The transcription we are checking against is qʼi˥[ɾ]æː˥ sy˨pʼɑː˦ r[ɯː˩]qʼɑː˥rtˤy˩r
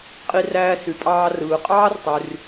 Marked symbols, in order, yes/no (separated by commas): no, yes